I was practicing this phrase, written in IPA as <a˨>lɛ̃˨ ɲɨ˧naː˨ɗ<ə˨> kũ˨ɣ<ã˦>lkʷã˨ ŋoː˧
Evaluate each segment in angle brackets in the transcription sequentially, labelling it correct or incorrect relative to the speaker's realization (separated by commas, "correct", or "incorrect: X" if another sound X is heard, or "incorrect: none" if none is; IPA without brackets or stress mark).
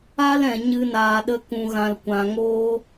incorrect: a˦, incorrect: ə˧, incorrect: ã˨